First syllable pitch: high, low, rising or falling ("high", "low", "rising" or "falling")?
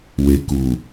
low